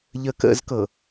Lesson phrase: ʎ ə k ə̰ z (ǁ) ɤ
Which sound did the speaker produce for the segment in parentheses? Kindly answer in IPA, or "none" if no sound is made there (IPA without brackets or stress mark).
k